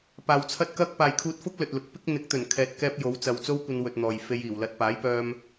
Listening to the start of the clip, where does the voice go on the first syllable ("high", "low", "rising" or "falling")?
low